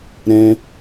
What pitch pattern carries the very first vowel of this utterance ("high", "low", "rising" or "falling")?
high